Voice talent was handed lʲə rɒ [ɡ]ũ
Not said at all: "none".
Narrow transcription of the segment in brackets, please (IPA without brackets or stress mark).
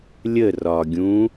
ɡʲ